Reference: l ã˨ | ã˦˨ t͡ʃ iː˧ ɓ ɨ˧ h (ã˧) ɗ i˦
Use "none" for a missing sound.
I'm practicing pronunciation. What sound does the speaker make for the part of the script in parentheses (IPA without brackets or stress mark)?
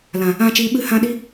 ã˧